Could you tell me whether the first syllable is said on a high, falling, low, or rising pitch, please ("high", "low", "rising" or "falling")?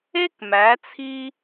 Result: high